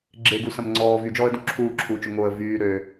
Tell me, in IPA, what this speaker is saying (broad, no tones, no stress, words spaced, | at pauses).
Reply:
ɡ͡ǁeɡusɐ̃m ŋ͡ǀɔː vyd͡ʒɔːə̯dũ ǁʰuːǁʰuːt͡ʃo ŋoə̯ vyː ɾøː